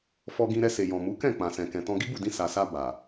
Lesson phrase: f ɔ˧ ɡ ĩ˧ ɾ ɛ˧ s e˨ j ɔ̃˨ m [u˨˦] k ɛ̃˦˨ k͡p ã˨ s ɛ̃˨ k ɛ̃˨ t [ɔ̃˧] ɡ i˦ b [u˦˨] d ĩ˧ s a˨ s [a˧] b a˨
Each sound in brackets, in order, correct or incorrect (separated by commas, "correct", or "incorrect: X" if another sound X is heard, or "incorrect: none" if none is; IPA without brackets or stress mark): correct, correct, correct, correct